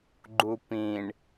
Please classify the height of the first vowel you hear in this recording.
high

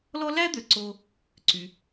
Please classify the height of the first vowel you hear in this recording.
mid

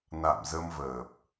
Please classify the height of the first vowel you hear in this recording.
low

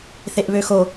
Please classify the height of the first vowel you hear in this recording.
mid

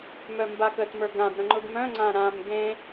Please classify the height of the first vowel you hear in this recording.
mid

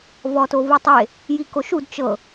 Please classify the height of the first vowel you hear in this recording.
mid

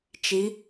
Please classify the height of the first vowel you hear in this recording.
high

